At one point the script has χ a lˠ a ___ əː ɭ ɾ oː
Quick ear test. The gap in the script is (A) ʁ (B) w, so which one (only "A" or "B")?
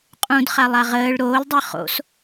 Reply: A